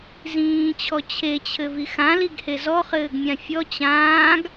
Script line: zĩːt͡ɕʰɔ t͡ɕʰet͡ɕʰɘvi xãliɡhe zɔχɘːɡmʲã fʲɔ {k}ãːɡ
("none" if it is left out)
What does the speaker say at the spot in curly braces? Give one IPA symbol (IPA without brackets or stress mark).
t͡ɕ